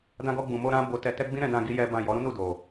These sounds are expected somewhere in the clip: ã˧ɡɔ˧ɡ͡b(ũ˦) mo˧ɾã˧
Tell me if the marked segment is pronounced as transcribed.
no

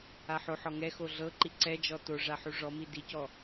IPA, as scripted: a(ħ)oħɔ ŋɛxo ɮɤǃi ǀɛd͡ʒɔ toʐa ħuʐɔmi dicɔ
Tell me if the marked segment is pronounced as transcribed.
yes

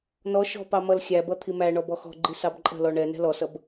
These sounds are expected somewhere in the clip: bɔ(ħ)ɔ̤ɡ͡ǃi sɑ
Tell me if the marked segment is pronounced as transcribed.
no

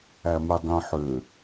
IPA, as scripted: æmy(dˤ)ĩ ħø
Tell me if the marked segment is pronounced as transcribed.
yes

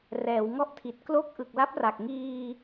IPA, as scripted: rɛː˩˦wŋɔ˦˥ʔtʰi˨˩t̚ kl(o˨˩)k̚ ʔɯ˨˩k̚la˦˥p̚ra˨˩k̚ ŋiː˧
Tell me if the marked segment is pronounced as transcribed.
no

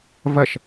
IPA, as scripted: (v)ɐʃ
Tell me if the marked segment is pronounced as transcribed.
yes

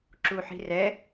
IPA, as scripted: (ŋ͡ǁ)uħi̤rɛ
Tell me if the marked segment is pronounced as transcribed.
no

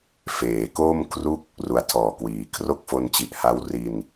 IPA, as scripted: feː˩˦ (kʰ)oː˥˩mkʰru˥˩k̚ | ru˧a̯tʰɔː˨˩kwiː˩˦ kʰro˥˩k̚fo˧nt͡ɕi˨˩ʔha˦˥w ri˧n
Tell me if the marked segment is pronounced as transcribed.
no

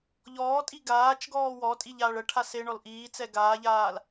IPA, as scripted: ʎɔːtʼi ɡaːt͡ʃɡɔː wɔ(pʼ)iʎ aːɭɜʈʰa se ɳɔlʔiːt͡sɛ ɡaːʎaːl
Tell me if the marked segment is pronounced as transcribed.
no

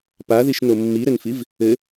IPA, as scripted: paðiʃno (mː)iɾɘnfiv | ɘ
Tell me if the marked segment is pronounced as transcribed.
yes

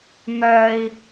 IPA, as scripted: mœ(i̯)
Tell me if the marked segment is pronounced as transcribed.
yes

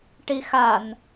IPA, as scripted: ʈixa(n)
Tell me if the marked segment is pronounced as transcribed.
yes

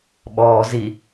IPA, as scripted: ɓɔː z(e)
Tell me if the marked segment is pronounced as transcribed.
no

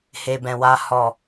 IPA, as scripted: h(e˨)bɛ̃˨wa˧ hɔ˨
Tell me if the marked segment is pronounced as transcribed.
yes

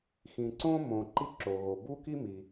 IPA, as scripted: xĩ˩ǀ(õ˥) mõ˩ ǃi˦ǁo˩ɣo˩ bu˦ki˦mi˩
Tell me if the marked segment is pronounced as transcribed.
no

